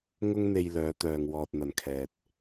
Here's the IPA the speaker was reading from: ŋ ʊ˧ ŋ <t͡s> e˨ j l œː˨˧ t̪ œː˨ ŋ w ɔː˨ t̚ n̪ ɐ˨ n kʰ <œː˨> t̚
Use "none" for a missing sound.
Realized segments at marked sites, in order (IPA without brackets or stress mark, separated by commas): n̪, ɛː˨